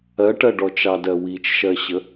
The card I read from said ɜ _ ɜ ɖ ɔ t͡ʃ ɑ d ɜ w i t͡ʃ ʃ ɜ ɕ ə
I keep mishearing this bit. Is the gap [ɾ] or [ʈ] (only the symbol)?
ʈ